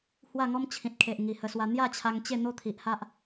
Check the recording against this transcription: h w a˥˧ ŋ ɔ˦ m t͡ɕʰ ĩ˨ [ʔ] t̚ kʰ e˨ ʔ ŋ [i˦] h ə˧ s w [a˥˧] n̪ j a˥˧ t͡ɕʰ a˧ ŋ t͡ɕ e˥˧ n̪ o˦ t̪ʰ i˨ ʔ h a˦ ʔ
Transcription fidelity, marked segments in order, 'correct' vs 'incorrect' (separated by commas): incorrect, incorrect, incorrect